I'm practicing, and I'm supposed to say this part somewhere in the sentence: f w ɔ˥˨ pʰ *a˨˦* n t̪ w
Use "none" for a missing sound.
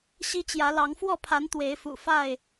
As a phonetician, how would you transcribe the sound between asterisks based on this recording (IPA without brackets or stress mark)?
a˨˦